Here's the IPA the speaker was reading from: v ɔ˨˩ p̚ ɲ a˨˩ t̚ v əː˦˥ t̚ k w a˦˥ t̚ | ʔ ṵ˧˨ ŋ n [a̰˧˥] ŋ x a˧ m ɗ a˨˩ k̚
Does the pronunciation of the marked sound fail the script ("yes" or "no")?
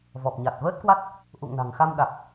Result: yes